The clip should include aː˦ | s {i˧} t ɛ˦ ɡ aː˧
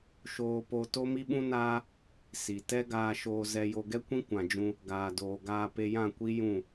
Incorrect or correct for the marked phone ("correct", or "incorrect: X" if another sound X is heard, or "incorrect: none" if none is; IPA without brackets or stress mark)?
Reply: incorrect: i˨